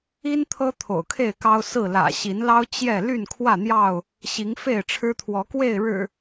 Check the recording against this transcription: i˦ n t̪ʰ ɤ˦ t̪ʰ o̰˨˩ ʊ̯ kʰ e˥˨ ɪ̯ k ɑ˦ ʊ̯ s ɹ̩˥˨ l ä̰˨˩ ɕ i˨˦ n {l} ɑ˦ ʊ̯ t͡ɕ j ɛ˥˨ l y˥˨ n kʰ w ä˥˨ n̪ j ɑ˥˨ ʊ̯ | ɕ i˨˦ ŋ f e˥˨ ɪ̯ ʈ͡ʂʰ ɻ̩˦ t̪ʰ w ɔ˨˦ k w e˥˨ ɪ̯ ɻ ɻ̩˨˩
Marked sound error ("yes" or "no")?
no